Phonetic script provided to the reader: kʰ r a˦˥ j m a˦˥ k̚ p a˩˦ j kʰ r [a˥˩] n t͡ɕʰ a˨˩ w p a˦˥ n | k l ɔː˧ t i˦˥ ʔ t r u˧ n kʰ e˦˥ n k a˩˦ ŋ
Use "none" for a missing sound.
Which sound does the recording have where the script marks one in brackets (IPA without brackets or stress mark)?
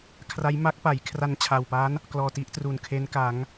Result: a˧